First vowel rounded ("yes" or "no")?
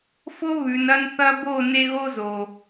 yes